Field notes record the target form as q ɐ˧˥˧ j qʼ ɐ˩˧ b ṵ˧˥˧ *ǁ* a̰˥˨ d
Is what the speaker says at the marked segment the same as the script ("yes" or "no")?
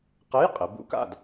no